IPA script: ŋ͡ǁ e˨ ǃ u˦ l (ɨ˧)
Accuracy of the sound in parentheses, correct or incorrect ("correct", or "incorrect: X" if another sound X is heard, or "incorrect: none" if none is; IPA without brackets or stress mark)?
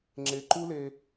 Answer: incorrect: e˧